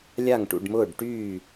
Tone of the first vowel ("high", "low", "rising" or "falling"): falling